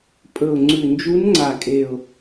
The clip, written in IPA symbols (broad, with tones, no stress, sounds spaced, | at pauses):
pʼ ɵ˨˩ ʊ̯ ŋ͡ǀ ʉ˨˩ n d͡ʒ u˧˥ n ŋ͡ǀ a˨˩ kʼ e˨˩ ʊ̯